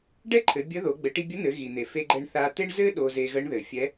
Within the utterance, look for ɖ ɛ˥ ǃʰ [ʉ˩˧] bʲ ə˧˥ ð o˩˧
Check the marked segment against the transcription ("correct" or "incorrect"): incorrect